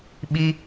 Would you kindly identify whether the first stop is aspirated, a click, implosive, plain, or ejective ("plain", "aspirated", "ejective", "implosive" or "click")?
implosive